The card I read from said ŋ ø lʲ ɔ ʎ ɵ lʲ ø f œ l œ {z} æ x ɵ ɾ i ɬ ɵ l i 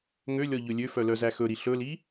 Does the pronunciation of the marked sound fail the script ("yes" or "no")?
no